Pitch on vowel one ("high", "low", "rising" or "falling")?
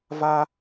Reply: high